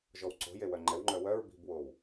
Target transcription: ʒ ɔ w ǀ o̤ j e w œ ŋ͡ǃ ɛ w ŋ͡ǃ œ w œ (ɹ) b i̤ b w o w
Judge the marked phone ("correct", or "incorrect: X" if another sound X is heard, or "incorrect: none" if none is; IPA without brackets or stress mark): correct